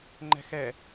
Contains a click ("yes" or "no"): yes